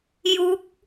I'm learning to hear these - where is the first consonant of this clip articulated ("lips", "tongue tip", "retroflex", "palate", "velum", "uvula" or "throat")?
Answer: palate